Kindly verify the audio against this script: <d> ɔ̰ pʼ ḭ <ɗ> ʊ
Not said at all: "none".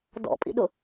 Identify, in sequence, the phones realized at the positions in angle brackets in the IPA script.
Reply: d, ɗ

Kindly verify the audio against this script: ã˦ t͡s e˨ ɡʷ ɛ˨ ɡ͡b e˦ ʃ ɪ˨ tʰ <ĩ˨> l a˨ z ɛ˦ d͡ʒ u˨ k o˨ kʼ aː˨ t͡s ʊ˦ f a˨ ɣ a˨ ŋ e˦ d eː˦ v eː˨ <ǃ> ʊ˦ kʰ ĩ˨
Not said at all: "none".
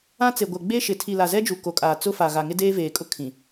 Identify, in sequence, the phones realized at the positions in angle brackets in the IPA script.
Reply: i˨, kʼ

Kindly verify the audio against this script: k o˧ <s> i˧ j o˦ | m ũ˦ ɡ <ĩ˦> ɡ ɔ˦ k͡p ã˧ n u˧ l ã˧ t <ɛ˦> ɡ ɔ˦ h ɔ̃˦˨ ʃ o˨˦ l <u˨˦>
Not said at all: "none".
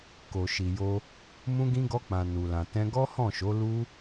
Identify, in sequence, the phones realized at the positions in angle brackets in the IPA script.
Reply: ʃ, ĩ˦, ɛ̃˦, u˦

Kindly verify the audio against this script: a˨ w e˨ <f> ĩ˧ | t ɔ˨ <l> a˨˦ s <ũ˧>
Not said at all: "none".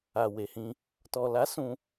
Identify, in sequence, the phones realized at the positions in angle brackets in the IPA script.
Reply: h, l, ũ˧

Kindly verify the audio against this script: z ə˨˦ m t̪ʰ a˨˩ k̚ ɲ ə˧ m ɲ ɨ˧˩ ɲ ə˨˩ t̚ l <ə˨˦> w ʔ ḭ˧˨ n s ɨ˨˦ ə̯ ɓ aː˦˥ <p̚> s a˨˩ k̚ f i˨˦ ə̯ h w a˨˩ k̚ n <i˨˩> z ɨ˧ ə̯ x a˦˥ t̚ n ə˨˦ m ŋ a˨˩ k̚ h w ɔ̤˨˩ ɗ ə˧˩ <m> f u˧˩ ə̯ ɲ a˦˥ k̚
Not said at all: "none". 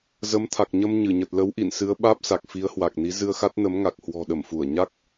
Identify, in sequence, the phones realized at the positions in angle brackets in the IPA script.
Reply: ə˨˦, p̚, i˨˦, m

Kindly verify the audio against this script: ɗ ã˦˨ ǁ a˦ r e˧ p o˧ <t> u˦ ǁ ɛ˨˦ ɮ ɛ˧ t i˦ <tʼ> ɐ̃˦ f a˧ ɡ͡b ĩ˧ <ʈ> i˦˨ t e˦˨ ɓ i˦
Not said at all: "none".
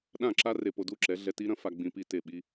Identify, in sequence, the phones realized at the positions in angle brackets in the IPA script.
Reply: d, ɾ, p

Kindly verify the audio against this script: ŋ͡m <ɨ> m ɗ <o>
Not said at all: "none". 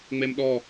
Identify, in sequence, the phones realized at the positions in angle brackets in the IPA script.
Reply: e, ɔ

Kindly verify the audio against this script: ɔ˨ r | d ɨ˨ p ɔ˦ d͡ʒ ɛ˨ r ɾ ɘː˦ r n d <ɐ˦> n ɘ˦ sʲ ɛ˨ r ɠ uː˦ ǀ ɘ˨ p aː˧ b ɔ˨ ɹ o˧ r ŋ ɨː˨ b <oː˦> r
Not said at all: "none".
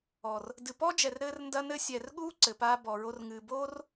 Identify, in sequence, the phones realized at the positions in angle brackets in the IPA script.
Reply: ɐ˦, oː˦

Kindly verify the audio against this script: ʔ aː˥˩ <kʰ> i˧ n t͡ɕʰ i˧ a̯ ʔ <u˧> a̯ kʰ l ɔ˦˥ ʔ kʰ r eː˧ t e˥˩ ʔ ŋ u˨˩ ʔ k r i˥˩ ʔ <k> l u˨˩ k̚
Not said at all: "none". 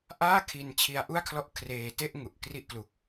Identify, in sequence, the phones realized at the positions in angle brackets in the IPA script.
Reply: kʰ, u˥˩, k

